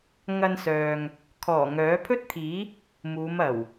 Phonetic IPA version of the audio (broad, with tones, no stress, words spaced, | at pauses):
ŋɐ˧nsœː˨ŋ | kʰɔː˨˩ ŋœː˨˥pʰɵ˥t̚t̪ʰiː˨˥ | muː˨˧mɐ˨˩w